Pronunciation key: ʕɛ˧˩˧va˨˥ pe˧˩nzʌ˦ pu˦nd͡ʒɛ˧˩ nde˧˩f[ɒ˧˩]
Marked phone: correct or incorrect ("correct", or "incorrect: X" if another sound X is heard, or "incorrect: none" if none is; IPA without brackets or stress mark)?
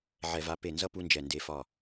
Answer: correct